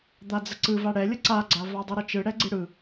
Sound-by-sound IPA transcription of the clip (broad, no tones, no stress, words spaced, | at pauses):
d̪ad͡zəǀɯva ɽɛlʲə ǀaɡ͡ǀa vadˤɯɾət͡ʃɯ ɽɛɡ͡ǀɯɽɯ